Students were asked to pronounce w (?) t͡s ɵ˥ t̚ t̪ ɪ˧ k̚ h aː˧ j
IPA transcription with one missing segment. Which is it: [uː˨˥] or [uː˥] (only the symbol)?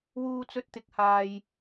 uː˥